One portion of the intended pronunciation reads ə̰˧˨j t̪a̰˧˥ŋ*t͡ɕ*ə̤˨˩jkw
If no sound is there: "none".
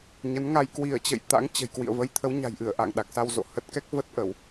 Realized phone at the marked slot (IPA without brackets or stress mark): t͡ɕ